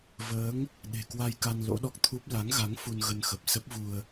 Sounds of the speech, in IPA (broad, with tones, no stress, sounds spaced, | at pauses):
v əː˨˦ ŋ | ɗ e̤˨˩ k w a˧ j k a˧ n l o̰˧˥ ɗ ɔ˦˥ k̚ t̪ʰ u˦˥ p̚ l a˨˦ ŋ ɣ a˨˦ ŋ f u˧ n ɣ ə˧ n x ə˨˩ p̚ s ə˦˥ p̚ v u˧ ə̯